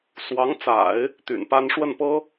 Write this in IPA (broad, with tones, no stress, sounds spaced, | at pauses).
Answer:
s w ɑ˧˥ ŋ t͡s a̰˨˩˦ ɪ̯ | t̪ y̰˨˩ n p a˥ n ʂ w ə˥˩ n p ɤ˥